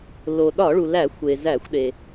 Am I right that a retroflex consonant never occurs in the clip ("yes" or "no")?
no